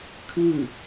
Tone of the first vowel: falling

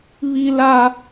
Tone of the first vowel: high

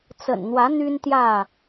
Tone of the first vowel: low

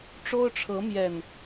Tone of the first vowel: high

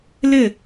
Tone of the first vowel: falling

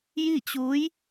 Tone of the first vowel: falling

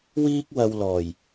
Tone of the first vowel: high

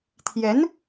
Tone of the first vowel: rising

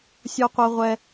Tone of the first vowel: high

